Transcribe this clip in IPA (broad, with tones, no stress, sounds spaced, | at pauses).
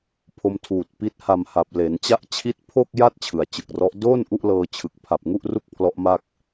pʰ o˧ m tʰ uː˨˩ t̚ p i˦˥ t̚ h a˧ m h a˨˩ p̚ l e˩˦ n t͡ɕ a˦˥ ʔ t͡ɕʰ i˦˥ t̚ pʰ o˥˩ k̚ j a˥˩ t̚ t͡ɕʰ ɯ˩˦ a̯ t͡ɕ ɯ˨˩ k̚ r ɔ˦˥ ʔ d oː˥˩ n ʔ u˥˩ ʔ l ɤː˧ t͡ɕʰ ɯ˨˩ k̚ pʰ a˨˩ p̚ ŋ u˥˩ ʔ r u˥˩ k̚ pʰ l ɔ˦˥ ʔ m a˥˩ k̚